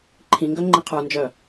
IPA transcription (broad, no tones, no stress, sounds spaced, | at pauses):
ǃʰ ĩ ŋ ɡ œ ŋ͡ǃ ĩ qʰ ə˞ n d͡ʒ œ